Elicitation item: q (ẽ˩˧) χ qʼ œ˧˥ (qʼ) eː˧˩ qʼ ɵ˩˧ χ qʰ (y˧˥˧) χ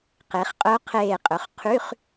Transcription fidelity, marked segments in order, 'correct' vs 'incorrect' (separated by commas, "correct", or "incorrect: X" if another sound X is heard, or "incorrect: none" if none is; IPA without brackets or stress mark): incorrect: e˩˧, incorrect: qʰ, correct